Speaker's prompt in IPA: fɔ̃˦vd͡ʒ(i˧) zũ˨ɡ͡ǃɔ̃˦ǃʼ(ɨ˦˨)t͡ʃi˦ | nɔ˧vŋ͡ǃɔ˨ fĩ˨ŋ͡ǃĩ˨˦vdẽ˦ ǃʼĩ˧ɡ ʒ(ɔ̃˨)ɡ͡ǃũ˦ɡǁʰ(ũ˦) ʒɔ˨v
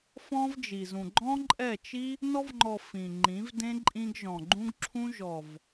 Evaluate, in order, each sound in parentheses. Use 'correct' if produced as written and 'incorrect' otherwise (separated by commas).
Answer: incorrect, incorrect, correct, correct